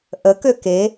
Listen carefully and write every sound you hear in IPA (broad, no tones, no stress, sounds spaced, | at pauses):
ʔ ə k ø k e